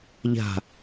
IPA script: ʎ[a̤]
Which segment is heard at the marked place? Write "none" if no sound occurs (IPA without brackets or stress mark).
a̤